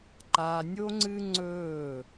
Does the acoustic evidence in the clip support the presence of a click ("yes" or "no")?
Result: yes